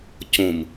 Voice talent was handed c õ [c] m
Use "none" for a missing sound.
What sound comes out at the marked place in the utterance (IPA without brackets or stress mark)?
none